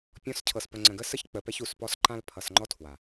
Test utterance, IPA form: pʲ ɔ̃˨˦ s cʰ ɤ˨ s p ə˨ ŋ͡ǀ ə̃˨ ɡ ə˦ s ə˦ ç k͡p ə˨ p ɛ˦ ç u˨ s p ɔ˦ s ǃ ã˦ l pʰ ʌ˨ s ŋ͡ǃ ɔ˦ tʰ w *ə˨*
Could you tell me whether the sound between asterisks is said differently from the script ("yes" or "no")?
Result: yes